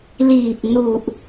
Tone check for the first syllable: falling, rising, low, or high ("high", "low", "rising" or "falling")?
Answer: low